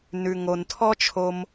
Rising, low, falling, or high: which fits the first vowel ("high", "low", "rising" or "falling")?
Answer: low